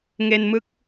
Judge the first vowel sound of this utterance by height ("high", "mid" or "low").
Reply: mid